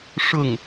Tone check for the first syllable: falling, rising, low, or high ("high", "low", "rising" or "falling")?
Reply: falling